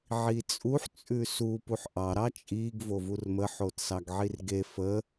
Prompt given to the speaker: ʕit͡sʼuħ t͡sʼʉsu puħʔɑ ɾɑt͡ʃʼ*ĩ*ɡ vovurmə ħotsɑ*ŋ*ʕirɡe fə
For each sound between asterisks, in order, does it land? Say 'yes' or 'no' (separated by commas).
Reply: no, no